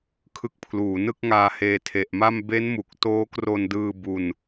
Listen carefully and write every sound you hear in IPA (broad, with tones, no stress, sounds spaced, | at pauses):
kʰ ɯ˦˥ k̚ pʰ l uː˩˦ n ɯ˥˩ k̚ ŋ aː˧ h eː˧ tʰ e˨˩ ʔ m a˥˩ m b e˦˥ n m u˨˩ k̚ t oː˦˥ k r o˧ n d ɯː˧ b u˧ n